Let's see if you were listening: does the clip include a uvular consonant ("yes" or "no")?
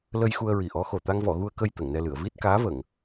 no